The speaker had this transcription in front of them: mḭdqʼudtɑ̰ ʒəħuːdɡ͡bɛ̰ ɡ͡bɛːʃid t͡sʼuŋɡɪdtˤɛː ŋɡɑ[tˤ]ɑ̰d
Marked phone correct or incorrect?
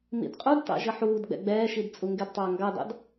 incorrect